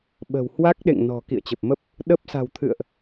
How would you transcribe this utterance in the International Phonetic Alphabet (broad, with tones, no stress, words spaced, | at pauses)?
ɓə̤˨˩whwa˦˥k̚ɗḛ˧˨ŋ nɔ̤˨˩ kḭ˧˨ə̯t͡ɕə˨˩p̚mə˦˥p̚ | ɗə˦˥p̚ sa̤˨˩wt̪ʰɨ̰˧˨ə̯ʔ